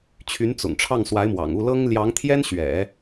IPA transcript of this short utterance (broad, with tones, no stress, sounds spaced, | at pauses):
t͡ɕʰ y˧˥ n t͡s ʊ̰˨˩ ŋ ʈ͡ʂʰ ɑ˥˩ ŋ s w a˧˥ ɪ̯ m w ɑ̰˨˩ ŋ u˥˩ l ɤ˥ ŋ l j ɑ˧˥ ŋ t̪ʰ j ɛ˥ n ɕ ɥ ɛ̰˨˩˦